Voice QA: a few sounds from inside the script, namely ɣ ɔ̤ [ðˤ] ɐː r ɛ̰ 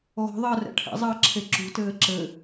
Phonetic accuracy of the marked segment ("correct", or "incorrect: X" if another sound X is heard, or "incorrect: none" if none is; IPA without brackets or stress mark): correct